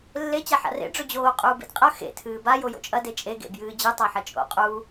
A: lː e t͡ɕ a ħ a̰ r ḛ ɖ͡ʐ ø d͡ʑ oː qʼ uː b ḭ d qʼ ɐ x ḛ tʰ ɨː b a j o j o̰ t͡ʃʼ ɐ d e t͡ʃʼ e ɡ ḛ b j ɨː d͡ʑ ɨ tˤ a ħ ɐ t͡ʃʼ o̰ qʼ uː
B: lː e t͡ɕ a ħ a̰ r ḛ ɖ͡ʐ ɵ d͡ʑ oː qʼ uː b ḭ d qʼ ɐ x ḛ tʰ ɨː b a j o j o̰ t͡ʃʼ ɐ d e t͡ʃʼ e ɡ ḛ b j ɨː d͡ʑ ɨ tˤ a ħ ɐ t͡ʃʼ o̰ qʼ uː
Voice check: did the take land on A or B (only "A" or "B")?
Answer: B